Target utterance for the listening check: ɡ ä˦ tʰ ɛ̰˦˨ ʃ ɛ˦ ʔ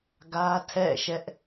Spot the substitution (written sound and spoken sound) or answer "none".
none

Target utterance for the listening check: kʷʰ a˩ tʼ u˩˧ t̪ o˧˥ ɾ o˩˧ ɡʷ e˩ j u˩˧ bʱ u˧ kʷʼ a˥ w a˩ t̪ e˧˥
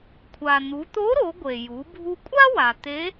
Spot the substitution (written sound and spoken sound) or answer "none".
tʼ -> n̪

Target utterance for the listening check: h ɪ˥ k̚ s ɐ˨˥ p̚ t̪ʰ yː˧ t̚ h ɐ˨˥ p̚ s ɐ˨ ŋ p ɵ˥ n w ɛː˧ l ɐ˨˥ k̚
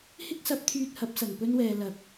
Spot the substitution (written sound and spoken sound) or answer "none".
none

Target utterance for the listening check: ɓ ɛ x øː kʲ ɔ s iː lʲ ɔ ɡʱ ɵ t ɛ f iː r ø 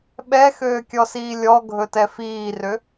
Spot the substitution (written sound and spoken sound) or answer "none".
none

